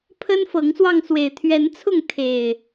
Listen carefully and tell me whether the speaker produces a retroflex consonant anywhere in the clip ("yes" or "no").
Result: no